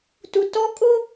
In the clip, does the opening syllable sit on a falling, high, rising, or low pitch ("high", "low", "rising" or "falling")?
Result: low